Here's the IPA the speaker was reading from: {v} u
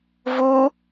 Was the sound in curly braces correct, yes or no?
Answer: yes